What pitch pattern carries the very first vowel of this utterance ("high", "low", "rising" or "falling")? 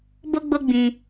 high